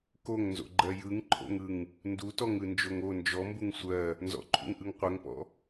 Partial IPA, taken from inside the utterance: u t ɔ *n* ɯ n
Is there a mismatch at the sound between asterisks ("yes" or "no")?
yes